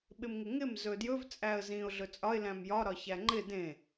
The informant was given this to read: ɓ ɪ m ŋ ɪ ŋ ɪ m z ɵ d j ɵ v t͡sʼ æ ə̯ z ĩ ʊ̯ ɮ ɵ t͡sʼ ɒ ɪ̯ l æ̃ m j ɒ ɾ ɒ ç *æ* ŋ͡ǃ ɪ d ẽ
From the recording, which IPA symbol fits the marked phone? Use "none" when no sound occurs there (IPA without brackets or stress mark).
æ